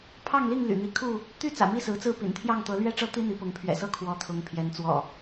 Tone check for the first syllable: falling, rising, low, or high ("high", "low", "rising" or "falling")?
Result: falling